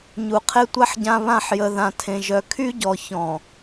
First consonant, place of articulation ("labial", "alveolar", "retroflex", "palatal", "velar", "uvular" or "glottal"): palatal